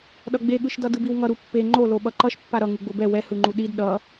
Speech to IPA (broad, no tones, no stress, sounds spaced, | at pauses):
ɗ ʌ ɡ͡b e ɠ ɯ ʃ d ʌ d ɯ b i w ŋ ʌ ɾ u pː e ŋ͡ǃ o l o ɓ ʌ ǃ ʌ ʃ pː a ɾ ʌ ŋ ɯ ɡ͡b o b ɛ w ɛ h ɯ ŋ͡ǃ u ɗ i d ɗ ʌ